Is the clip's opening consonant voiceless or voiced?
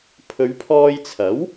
voiceless